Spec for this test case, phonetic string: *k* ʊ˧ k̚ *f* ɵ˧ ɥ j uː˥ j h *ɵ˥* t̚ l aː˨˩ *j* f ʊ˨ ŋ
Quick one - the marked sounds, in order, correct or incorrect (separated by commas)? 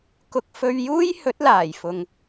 correct, correct, incorrect, correct